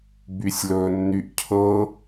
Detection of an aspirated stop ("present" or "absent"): present